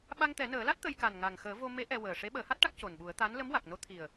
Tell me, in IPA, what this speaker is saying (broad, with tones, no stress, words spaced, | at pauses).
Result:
ɓa˧ŋt̪ɛ˨˩˦nəː˨˩˦la˦˥t̚ t̪ə˧jka˨˩n ŋa˨˩ŋ xəː˨˩˦ vo˧ me˧˥ ʔɛ˧ wəː˨˩ ʂe˧˥ɓəː˨˩˦ha˦˥t̚ʈa˦˥k̚ co˨˩nɓu˨˩˦ə̯ t̪a˧˥n lə˧˥mwa˨˩k̚no˧˥ t̪ʰi˨˩ə̯